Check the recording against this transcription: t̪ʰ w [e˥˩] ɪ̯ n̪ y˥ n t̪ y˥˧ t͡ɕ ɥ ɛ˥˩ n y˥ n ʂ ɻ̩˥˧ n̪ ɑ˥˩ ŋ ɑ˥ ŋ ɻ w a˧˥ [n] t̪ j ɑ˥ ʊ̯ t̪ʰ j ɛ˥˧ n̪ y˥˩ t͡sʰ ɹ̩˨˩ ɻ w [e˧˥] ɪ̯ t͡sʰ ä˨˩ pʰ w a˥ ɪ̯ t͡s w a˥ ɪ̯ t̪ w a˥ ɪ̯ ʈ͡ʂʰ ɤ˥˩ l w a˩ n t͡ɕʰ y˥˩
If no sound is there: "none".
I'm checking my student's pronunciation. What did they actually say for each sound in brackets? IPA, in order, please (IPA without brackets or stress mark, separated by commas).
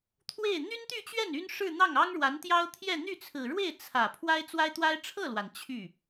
e˥˩, n, e˥˩